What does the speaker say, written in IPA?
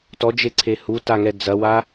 t ɔ d͡ʒ e ǀʰ e h u t a ŋ ɛ d͡z ɐ w a

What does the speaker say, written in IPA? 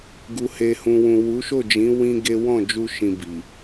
ɡ u˧ h e˧ h ũ˨ w ũ˨ w u˨˦ ʃ o˦˨ d͡ʒ ĩ˨˦ w ĩ˦ ɡ e˦ w ɔ̃˦˨ d͡ʒ u˧ ʃ ĩ˧ b i˨

